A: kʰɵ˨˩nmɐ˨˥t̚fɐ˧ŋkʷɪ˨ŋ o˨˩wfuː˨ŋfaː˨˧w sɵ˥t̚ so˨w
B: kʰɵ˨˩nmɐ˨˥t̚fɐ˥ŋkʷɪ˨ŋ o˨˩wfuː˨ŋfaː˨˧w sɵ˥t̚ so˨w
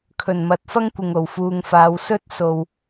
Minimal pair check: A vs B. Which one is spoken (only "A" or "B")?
B